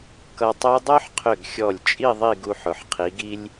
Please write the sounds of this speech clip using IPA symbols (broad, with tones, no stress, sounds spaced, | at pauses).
k ʌ˧ tˤ o˥ dˤ o˥ ħ qʰ ʏ˧˩ ɡ xʲ ɔ˧˩ lʲ t͡ʃʼ i˥˧ ðˤ i˥˧ ɡ u˧ ħ ʊ˩˧ ħ qʰ i˩˧ ɡ i˧ lʲ